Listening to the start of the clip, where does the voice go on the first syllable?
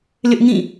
high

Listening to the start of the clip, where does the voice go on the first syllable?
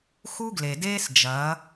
high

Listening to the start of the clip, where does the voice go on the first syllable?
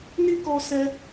high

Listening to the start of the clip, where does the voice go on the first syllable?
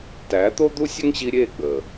rising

